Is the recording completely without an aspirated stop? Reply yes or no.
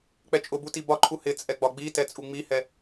no